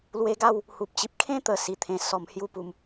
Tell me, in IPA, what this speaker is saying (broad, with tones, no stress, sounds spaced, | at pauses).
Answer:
l w e˧ ɡ a˥˧ w | h u˨ p̚ t͡ɕ i˨ p̚ kʰ ẽ˦ t̪ ə˨˩ s i˨˩ t̪ʰ ẽ˧ s ɔ˧ m h j u˦ p u˧ m